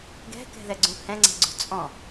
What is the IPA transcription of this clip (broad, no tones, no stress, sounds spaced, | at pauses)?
ɡ ɛ̤ k ɛ̤ ð ɛ ɡ͡ǀ ũ h ɛ̃ ŋ͡ǀ ɛ̤ ɡ͡ǀ ṳ t͡sʼ ɔ̃